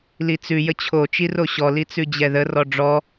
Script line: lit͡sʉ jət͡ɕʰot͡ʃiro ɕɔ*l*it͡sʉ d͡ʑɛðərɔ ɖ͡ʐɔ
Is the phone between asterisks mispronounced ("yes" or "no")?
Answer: no